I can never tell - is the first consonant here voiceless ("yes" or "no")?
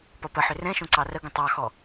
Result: yes